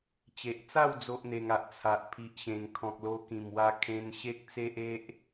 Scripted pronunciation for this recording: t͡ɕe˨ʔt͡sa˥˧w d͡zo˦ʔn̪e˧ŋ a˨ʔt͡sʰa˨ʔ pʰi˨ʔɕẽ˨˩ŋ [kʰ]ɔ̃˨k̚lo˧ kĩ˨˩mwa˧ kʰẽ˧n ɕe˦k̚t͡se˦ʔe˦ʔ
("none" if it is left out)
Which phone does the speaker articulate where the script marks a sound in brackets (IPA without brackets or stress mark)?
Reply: kʰ